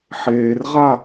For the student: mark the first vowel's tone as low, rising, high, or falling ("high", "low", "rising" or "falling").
low